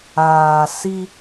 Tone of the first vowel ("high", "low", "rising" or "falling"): low